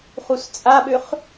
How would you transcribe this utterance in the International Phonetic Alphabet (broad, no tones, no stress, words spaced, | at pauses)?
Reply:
χust͡sʼaɓøχ